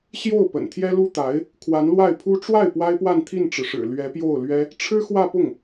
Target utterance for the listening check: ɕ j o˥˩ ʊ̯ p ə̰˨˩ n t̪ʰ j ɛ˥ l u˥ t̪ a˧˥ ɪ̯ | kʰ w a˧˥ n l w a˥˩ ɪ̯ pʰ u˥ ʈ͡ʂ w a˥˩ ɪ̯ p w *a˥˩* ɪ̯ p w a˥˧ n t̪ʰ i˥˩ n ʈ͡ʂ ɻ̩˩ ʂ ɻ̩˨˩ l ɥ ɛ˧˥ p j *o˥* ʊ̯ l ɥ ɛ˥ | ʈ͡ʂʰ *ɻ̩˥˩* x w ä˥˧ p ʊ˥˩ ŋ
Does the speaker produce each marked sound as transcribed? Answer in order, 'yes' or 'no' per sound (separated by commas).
no, no, no